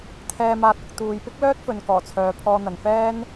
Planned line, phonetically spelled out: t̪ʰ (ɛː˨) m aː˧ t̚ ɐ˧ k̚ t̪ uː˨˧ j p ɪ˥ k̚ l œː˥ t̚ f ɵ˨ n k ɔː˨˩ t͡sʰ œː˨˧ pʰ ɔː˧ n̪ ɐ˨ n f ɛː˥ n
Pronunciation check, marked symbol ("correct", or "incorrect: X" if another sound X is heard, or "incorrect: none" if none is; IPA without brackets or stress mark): incorrect: ɛː˧